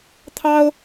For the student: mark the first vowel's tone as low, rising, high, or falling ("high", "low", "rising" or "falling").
high